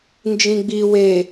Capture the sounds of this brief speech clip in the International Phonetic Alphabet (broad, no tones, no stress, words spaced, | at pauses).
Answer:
nd͡ʒĩɡ͡bi we